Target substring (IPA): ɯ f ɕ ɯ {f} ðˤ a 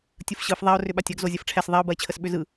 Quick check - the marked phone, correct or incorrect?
correct